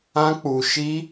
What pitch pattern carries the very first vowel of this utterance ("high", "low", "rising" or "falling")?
high